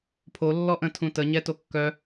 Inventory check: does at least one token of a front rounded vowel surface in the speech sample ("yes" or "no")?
yes